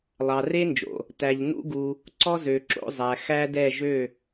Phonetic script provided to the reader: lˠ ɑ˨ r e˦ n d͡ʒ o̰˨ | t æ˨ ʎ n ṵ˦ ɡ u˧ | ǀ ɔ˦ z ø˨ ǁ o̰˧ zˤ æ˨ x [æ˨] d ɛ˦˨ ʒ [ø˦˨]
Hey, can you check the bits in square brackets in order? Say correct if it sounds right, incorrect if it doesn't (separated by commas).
incorrect, correct